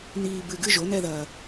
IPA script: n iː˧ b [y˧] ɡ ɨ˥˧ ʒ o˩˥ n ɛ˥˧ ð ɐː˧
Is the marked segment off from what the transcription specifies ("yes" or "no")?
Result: yes